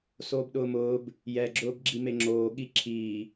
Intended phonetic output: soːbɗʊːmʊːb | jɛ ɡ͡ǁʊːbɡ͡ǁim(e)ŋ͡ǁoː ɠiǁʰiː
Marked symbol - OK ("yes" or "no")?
yes